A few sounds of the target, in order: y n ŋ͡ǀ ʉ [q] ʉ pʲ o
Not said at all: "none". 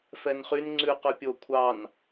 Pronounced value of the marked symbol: q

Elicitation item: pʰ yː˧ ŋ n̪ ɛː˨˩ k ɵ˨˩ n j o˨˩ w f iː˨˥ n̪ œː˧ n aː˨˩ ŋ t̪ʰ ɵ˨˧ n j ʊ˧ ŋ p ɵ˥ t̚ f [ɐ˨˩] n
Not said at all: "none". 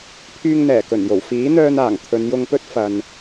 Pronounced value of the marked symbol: ɐ˨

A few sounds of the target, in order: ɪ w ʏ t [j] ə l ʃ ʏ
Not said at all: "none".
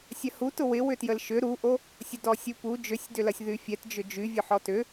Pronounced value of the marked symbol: j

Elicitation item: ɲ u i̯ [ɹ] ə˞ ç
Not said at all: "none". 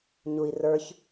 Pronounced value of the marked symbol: r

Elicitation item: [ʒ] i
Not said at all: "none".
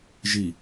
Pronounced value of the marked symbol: ʒ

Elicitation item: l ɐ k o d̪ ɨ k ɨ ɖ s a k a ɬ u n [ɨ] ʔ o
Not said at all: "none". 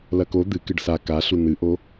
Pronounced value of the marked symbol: ɨ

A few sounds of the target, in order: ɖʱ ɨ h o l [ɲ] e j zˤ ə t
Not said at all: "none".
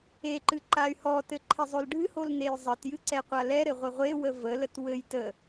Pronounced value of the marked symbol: n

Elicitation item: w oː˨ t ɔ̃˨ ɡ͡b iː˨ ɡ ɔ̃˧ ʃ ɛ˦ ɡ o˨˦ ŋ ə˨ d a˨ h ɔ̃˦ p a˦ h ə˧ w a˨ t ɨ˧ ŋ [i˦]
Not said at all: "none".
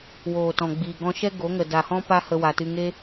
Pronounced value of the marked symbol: e˦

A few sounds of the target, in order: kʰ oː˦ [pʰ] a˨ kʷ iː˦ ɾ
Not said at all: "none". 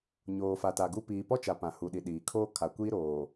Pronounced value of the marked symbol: kʰ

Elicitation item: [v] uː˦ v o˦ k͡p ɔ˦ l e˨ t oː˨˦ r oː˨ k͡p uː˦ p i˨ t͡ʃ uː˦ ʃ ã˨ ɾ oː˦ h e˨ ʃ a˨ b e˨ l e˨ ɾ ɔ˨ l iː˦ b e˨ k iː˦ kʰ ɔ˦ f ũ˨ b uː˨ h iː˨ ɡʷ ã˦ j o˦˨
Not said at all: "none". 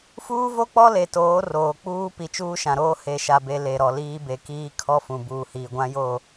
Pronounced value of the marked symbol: f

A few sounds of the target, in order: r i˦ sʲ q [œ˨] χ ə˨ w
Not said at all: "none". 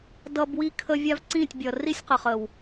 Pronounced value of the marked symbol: ə˨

